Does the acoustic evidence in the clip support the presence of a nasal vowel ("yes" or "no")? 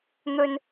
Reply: no